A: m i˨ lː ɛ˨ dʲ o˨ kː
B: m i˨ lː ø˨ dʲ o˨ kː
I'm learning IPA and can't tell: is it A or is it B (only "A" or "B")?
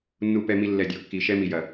A